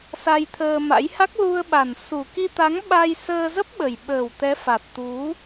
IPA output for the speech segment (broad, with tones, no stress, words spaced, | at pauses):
sa˧jt̪ʰəː˧ma̰˧˥j ha˦˥k̚lu˧ə̯ɓa˨˩n su˨˩ki˧t̪a˨˦ŋ ɓa˧jsəː˧ zə˦˥p̚ɓə˨˩jɓəː˨˩w t̪ɛ˨˦ fa˨˩t̚t̪u˨˦